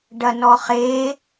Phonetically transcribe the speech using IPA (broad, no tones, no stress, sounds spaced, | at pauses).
ɖ ɐ n ɔ χ e